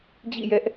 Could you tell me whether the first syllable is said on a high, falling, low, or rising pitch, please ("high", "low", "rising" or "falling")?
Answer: falling